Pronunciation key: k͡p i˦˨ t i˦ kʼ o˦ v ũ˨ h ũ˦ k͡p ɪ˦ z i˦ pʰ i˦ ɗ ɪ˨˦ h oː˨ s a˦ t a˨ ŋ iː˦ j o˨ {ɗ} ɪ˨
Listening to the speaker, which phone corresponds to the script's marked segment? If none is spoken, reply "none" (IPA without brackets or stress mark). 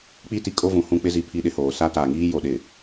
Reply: ɗ